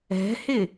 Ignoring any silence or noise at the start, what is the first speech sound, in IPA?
ɛ̤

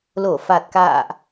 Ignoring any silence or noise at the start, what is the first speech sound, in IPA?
l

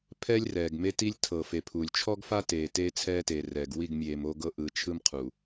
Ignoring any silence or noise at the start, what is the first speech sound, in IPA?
pʰ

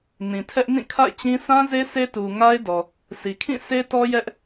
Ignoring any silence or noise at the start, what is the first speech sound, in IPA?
n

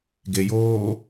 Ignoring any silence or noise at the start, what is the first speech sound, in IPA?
ɡ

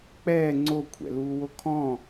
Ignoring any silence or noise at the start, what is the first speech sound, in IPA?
k͡p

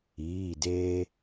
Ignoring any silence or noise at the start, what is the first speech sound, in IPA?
iː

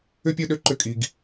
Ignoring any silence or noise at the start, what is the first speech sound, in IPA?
ʏ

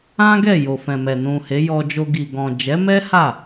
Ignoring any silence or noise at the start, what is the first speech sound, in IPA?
ã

